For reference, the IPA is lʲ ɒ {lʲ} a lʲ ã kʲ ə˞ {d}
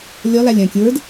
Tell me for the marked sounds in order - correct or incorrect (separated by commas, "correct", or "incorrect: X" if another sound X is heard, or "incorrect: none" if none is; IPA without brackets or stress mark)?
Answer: incorrect: l, correct